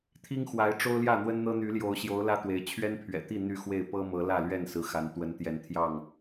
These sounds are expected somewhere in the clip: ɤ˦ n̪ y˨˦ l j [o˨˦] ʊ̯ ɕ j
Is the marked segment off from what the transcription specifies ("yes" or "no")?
no